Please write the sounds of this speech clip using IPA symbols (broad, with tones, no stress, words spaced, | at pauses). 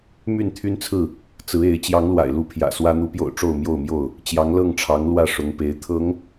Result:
my˥˨n t̪ʰy˦nt͡sʰɹ̩˥˨ | t͡sɹ̩˨˦e˨˦ɪ̯ t͡ɕjɑ˨˦ŋlwa̰˨˩ɪ̯lu˨˦ pʰjä̰˨˩swä˦ n̪u˨˦pjo̰˨˩ʊ̯ ʈ͡ʂo˥˨ʊ̯mjo˥˨ʊ̯mjo˥˨ʊ̯ | t͡ɕjɑ˨˦ŋlɤ˥˨ŋʈ͡ʂʰɑ˨˦ŋ lwä˥˨ʂʊ˨˦ŋpe˨˦ɪ̯ t̪ʰɤ˨˦ŋ